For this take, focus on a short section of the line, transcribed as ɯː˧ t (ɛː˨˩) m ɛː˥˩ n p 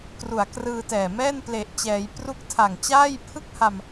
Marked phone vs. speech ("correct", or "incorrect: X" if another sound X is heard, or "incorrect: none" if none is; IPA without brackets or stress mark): correct